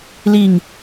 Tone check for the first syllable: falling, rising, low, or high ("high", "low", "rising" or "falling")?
falling